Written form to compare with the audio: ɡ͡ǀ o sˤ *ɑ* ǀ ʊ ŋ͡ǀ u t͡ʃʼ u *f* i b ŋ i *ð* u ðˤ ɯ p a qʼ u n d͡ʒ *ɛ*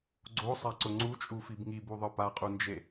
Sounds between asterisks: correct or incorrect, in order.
incorrect: a, correct, incorrect: b, incorrect: e

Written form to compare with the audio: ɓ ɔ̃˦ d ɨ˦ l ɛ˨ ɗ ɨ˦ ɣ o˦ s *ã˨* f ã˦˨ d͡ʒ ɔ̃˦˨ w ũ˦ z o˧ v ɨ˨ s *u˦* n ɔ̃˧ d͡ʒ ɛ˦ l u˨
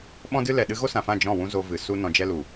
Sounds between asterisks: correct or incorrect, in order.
correct, correct

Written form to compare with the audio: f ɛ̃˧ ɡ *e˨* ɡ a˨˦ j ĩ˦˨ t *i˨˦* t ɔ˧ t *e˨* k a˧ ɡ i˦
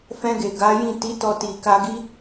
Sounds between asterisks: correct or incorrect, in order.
correct, correct, incorrect: i˨

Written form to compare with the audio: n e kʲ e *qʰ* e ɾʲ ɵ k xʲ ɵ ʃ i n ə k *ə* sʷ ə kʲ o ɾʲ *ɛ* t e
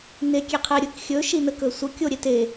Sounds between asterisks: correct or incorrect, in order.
correct, incorrect: ɵ, incorrect: e

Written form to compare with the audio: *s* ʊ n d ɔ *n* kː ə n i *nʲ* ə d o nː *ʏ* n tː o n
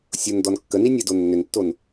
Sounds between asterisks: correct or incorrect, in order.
incorrect: sʲ, correct, correct, correct

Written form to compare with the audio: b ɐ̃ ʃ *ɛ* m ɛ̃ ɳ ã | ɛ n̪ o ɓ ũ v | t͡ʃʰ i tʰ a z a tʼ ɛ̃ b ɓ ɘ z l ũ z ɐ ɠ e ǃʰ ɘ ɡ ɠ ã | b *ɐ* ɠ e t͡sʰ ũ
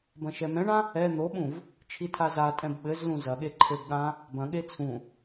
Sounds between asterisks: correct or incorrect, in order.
correct, incorrect: ɐ̃

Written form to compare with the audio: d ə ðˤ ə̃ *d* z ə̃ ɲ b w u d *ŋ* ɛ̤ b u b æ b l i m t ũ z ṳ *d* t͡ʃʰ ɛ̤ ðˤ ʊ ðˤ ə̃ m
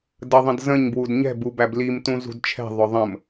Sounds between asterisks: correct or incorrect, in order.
correct, incorrect: ɲ, correct

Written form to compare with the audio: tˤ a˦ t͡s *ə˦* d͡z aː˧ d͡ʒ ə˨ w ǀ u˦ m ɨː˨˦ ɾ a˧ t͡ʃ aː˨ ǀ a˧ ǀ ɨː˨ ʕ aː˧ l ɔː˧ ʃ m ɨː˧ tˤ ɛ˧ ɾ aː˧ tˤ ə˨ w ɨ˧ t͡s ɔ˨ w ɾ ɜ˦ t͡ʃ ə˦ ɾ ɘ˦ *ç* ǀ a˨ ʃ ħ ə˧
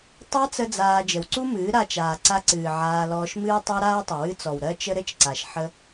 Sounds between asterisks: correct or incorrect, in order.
correct, incorrect: t͡ʃ

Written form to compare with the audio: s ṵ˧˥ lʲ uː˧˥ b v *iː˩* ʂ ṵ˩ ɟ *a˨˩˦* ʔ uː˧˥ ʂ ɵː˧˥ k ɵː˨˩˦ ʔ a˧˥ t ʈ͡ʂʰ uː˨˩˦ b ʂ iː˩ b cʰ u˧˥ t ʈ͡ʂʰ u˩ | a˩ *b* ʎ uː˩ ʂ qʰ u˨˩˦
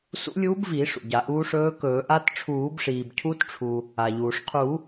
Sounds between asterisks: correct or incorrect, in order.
incorrect: iː˨˩˦, correct, incorrect: none

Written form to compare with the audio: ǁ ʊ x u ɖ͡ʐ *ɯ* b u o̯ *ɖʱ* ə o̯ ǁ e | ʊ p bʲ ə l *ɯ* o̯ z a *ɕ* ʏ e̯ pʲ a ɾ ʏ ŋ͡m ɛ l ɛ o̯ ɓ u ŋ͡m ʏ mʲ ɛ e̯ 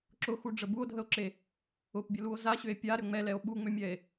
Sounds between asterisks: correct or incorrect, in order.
incorrect: ə, incorrect: dʱ, incorrect: u, correct

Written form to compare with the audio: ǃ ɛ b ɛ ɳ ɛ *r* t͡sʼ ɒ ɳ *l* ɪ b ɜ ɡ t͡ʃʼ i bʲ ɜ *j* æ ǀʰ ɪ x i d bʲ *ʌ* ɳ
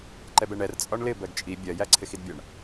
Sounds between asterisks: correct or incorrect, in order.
correct, correct, correct, correct

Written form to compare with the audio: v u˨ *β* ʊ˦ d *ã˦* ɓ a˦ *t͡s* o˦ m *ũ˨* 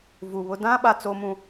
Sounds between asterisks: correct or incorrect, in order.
correct, correct, correct, incorrect: ũ˦

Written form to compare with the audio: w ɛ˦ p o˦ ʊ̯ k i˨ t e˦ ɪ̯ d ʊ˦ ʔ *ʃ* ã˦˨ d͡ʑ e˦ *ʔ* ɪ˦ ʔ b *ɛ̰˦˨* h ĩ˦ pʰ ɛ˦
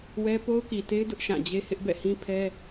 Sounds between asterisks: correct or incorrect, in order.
correct, incorrect: h, correct

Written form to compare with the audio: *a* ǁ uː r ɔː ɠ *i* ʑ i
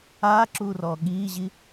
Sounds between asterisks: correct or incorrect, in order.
incorrect: aː, incorrect: iː

